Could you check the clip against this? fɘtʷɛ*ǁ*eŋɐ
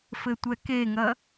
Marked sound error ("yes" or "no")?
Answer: yes